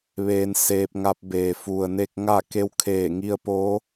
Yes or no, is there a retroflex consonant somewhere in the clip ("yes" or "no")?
no